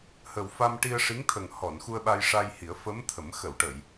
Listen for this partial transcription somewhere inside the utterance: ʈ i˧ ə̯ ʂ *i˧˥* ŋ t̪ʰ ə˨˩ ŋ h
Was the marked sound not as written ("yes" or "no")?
no